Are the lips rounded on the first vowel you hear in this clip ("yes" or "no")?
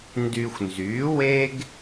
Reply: yes